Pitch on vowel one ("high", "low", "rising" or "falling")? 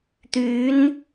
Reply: rising